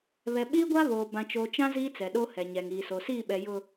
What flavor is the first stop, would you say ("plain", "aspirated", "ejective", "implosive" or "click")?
implosive